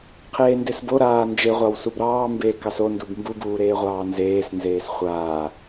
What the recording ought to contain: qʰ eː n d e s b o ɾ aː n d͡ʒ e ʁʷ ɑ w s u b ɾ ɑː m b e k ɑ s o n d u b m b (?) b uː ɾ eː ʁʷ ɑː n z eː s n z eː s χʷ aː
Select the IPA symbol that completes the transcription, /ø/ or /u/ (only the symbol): u